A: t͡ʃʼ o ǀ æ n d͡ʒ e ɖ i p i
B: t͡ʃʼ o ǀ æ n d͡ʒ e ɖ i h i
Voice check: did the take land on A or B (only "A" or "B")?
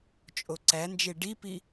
A